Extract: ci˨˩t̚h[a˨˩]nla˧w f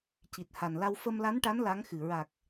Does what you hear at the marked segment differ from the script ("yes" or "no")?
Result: no